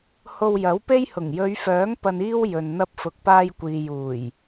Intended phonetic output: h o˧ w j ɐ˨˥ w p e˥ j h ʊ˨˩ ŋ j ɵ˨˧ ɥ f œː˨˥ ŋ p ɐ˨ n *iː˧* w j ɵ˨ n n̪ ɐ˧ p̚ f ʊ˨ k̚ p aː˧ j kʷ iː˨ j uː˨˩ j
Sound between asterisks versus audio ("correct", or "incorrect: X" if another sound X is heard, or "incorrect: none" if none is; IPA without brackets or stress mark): correct